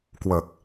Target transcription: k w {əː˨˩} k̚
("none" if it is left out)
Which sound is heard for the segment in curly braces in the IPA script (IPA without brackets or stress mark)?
əː˨˩